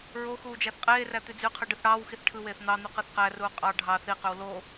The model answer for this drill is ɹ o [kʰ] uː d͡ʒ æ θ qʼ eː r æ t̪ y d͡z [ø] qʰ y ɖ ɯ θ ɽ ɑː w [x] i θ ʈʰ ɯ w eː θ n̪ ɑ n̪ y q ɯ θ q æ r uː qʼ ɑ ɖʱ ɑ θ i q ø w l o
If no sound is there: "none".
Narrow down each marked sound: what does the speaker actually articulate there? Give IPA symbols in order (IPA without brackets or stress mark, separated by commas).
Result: x, y, x